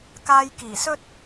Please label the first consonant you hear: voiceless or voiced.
voiceless